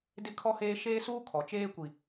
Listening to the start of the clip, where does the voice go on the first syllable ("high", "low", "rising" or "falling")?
high